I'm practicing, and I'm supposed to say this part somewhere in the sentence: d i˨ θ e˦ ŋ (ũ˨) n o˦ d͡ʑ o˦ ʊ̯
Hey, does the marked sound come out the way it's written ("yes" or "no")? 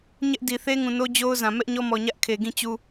yes